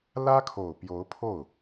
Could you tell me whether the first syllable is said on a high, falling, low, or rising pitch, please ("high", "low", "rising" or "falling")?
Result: high